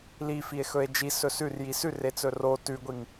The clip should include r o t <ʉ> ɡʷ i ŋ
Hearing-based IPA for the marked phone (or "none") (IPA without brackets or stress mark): ʉ